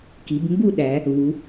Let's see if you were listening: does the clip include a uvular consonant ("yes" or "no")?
no